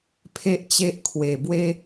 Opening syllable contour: high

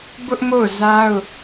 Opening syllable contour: high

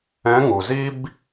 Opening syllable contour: rising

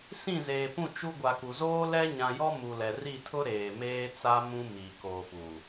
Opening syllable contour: falling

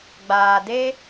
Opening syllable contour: low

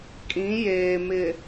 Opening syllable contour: rising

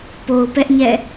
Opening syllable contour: low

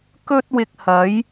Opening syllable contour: high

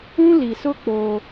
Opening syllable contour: high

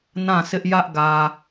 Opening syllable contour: falling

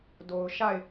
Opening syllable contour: low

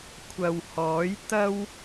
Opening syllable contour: low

